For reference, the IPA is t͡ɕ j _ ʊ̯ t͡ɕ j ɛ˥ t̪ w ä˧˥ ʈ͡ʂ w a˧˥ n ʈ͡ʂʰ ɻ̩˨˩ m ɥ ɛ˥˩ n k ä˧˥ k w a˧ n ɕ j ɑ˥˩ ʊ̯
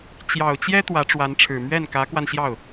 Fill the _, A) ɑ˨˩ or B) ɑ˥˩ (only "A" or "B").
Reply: A